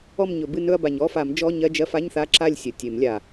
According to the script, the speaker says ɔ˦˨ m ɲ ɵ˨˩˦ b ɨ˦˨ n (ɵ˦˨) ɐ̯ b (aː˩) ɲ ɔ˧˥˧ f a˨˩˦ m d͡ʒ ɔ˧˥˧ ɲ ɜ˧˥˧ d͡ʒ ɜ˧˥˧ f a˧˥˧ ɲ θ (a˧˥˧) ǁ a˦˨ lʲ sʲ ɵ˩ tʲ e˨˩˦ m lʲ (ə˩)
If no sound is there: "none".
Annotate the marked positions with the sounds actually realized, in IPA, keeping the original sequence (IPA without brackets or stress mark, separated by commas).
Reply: ɵ˦˨, a˩, a˧˥˧, a˩